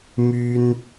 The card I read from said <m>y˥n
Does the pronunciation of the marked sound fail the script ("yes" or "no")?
no